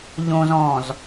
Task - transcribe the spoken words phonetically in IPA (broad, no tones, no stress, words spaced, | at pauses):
ʎõz ɔ̃z